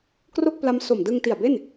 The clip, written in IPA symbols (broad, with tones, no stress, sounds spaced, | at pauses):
k r o˥˩ k̚ p l a˦˥ m s o˨˩ m d ɯ˧ ŋ t i˨˩ a̯ b e˥˩ n